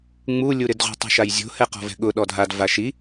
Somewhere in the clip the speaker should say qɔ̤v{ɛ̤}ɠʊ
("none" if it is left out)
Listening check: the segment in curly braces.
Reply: ɛ̤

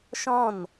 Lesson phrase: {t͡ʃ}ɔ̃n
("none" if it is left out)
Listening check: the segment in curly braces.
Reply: ʃ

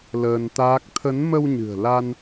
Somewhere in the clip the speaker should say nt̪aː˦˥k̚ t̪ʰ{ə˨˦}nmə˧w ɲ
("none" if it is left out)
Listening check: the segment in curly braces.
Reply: ə˨˦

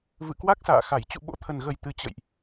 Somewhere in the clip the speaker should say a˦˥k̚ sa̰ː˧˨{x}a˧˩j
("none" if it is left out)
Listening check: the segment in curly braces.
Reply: x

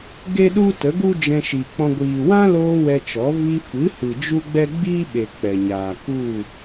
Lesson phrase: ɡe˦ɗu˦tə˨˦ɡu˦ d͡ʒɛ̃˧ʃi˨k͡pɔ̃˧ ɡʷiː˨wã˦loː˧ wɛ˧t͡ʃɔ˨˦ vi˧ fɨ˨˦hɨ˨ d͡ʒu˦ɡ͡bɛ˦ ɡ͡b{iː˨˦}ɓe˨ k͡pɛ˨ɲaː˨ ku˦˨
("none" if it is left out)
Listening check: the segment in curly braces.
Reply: iː˦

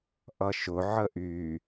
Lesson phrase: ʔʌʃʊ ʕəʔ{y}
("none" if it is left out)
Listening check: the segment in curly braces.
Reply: y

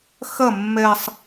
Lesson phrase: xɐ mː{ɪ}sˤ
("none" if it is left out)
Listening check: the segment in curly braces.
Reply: ɛ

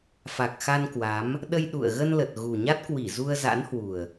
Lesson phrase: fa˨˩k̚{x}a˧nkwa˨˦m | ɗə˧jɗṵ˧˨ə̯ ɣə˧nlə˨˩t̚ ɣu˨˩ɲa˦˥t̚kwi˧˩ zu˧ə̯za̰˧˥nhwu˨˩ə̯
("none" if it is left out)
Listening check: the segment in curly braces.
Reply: x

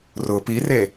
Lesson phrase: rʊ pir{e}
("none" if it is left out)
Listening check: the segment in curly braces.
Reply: e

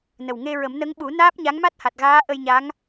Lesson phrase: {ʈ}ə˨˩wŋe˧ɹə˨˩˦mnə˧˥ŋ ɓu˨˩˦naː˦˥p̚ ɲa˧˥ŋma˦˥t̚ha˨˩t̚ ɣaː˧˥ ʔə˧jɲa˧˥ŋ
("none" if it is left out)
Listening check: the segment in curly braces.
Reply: n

